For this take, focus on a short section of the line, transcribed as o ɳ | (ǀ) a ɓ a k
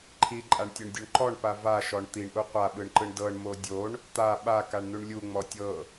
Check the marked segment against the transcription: incorrect: t̪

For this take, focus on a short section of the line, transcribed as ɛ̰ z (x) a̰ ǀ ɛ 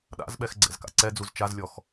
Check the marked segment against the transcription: incorrect: k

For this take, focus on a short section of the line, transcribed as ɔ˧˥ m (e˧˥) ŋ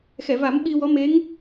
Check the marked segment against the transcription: correct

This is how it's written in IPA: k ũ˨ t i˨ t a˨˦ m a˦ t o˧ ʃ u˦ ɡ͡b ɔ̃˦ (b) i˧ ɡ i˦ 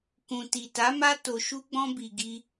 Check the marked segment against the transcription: correct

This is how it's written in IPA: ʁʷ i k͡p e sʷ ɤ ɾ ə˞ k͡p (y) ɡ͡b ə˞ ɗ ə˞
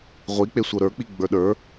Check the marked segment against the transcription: incorrect: i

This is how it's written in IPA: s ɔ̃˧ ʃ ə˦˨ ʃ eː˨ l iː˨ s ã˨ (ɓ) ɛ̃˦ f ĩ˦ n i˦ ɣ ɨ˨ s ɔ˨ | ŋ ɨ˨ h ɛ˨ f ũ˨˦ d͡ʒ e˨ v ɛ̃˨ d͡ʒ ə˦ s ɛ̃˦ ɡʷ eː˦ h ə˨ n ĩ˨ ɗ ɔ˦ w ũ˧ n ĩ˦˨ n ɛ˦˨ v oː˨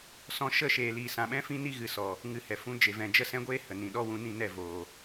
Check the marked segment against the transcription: correct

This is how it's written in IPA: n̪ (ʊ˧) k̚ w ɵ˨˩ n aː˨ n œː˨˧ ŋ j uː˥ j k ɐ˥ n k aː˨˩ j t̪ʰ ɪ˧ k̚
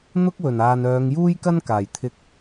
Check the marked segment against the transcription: incorrect: ʊ˥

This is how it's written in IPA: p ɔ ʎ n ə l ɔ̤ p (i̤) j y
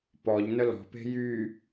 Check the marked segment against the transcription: incorrect: e̤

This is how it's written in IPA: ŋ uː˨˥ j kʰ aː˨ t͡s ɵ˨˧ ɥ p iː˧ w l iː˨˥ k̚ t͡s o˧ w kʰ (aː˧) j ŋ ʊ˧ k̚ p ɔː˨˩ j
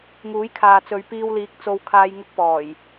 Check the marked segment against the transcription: correct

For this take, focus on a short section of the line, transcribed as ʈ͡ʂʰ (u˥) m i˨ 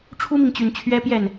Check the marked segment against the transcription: correct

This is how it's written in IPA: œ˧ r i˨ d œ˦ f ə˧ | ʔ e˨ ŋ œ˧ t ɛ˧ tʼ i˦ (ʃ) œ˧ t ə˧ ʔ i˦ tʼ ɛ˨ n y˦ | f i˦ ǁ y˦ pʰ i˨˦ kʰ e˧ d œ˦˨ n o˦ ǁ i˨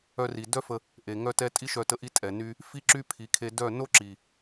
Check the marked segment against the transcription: correct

